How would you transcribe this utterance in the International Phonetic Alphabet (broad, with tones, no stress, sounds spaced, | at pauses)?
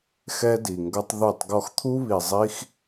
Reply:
x ɛ˦ d i˨ ŋ ɡ ʌ˦ tˤ ð u˦˨ tˤ ɡ ɔ˧ x t̪ʰ u˦ β i˨ zˤ i˦ x